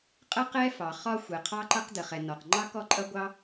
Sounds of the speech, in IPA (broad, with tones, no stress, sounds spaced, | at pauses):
qʼ ə˥ q ɛ˥ f ɑ˩ χ ɒ˥ xʷ ɛ˩ qʰ ɑ˥ ǃ ʌ˥ q d ə˩ χ ɛ˩ n ɔ˩ q ŋ͡ǃ ɑ˥ k ɔ˥ ǃʼ ʌ˥ ɡʷ ɑ˥